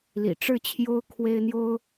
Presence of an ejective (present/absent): absent